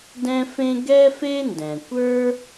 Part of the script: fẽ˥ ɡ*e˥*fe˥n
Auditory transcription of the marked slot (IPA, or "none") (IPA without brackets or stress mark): ɛ˥